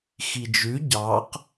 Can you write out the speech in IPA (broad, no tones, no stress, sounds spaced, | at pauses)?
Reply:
x i d͡ʒ ʉ ɟ ɑ q